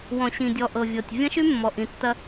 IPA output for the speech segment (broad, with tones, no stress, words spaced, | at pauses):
wɔ̃˨ɕĩ˨dʲɔ˨ ʔɤ˨vʲɤ˨tʲ vʲɐ̃˦ʃy˦ mːɔ˨ʔĩ˨tːɐ˦